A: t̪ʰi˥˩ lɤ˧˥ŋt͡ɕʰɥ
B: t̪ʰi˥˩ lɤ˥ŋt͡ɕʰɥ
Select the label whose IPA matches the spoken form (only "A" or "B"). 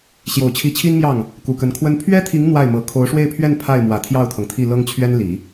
B